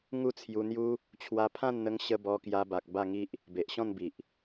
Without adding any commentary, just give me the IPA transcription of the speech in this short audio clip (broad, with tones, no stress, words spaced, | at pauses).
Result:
ŋu˥˧t͡sʰju˧n̪ju˦ | t͡ɕʰwa˧pʰã˥˧nn̪ə˧ŋ ɕə˧ bɔ˧kja˧ba˨k̚ ba˥˧ŋi˦ʔ | be˨ʔɕɔ̃˥˧nbi˨ʔ